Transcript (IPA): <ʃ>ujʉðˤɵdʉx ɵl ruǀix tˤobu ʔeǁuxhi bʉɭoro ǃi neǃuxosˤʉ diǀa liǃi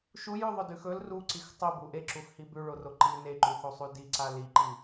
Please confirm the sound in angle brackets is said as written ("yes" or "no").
yes